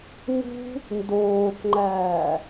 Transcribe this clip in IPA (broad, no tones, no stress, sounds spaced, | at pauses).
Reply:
ŋ ṳ | n d oː θ ŋ͡ǃ æː